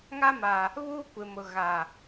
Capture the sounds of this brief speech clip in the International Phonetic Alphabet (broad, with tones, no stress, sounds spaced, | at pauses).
ŋ a˦ m a˨ | β uː˦ kʷ ɪ˨ m ʊ˨ ɣ a˨